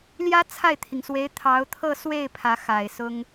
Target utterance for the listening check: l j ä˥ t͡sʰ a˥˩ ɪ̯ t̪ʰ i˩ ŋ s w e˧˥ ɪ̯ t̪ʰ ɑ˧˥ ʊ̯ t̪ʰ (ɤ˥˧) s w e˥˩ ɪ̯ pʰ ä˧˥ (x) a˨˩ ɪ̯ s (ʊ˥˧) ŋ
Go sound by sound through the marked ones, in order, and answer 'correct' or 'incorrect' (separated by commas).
correct, correct, incorrect